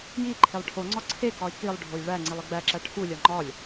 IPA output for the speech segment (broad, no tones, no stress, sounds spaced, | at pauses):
j i ǃʰ e lˠ ʈʰ o ŋ͡ǀ ɒ ǀʰ e k ɒ i̯ k i lˠ ɖʱ o j ɭ æ ŋ͡ǀ i lˠ e ɡ͡b æ ǁ æ ʈʰ u lʲ ɒ ŋ͡ǃ ɒ lʲ